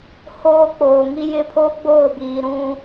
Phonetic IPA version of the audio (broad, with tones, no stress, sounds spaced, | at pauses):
h oː˦ k͡p oː˨ ŋ i˦ j ɪ˦ pʰ o˦ ɡ͡b oː˦˨ b iː˨ ɾ ũ˦